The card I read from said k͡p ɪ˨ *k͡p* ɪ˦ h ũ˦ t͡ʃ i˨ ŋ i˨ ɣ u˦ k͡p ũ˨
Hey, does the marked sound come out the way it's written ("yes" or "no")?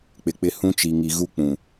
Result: yes